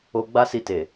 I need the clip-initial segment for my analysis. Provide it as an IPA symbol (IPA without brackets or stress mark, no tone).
o